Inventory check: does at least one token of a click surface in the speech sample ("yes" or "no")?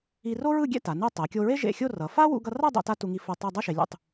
no